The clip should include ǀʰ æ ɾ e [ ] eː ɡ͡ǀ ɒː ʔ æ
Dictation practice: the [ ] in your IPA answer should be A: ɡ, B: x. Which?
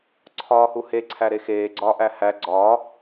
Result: B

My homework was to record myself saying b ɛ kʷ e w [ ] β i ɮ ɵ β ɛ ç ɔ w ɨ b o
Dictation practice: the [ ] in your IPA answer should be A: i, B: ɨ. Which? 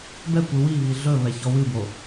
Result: A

